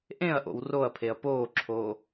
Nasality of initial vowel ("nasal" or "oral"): nasal